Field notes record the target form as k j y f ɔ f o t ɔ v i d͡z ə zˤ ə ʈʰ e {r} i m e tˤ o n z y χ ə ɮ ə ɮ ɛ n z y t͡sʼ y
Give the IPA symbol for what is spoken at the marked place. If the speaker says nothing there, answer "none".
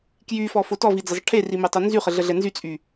r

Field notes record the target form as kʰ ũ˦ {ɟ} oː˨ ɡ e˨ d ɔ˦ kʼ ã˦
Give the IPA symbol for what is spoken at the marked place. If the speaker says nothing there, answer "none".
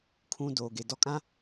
d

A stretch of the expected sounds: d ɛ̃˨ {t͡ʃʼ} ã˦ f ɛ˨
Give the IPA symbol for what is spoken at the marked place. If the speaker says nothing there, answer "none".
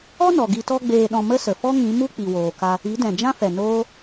d͡ʒ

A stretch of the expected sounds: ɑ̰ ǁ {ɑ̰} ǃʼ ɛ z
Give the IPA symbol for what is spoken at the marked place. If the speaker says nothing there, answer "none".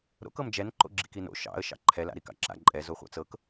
a̰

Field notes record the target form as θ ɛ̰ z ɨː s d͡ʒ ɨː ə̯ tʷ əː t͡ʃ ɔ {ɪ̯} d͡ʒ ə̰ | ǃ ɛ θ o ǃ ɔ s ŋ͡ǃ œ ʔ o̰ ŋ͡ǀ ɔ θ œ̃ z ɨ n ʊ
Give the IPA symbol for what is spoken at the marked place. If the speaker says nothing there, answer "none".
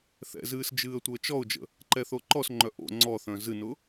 ʊ̯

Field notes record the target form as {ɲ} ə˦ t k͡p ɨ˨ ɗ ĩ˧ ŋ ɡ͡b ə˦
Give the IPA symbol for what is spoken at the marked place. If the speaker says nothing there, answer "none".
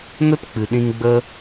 n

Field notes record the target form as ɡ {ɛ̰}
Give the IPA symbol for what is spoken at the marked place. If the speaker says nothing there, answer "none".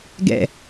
ɛ̰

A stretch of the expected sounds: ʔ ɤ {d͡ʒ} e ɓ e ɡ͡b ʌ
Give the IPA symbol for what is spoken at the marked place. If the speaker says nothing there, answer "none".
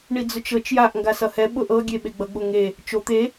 ɡʲ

